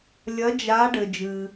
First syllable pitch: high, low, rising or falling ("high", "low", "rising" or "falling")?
rising